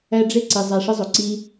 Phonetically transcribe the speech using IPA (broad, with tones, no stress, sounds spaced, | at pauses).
æ˦ ɖ͡ʐ e˥ ǀ i˩ zˤ a˨ ʂ ɘ˦ zˤ o˩ ǀ i˦